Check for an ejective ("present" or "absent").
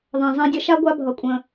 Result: present